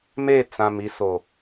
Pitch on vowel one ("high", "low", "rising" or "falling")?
falling